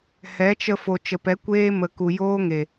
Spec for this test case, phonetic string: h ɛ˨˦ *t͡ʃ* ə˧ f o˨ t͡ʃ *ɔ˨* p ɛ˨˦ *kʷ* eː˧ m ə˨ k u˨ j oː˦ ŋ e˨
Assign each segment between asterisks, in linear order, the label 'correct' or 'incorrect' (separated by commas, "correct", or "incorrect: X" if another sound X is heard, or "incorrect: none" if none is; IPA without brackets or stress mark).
correct, incorrect: ə˨, correct